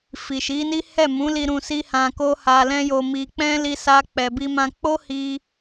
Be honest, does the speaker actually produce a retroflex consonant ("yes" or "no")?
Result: no